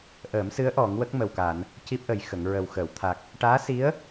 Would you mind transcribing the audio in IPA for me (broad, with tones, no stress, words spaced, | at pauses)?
ʔəː˨˩˦msɨ˧˥ə̯ ʔɔ˨˩˦ŋwə˦˥k̚ mə˨˩wka˨˩˨n | ci˦˥p̚ʔə˨˩j xə˨˩˨ŋɹə˨˩wxəː˨˩˨wt̪ʰa˨˩k̚ | ʈaː˧˥si˧˥ə̯